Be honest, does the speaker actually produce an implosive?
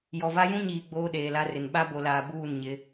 yes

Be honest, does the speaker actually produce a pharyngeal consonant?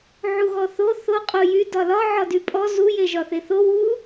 yes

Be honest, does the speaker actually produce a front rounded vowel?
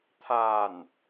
no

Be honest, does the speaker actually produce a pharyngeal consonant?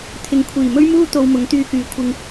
no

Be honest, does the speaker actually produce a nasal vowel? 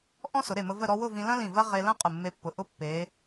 yes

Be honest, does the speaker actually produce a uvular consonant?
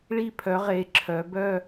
yes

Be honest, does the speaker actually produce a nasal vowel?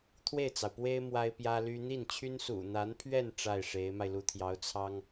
no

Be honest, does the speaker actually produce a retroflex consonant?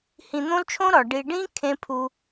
yes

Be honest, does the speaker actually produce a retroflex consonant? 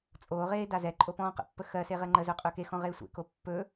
no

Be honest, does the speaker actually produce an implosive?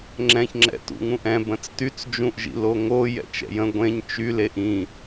no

